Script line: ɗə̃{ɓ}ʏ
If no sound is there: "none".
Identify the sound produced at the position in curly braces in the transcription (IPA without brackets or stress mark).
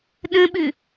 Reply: ɓ